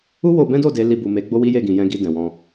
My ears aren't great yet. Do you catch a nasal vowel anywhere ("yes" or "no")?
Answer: yes